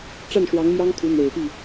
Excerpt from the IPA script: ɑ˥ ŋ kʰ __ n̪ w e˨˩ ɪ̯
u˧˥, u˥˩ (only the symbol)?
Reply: u˧˥